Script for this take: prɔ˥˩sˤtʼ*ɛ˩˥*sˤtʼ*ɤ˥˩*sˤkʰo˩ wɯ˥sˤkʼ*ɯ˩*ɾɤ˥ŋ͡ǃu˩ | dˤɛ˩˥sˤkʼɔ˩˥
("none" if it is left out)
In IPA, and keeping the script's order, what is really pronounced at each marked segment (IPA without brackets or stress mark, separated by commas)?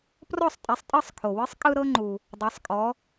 ɛ˩˥, ɤ˥˩, ɯ˥